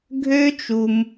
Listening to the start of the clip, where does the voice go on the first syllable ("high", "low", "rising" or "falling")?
high